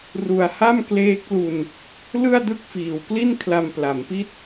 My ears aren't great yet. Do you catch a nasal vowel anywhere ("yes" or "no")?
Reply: no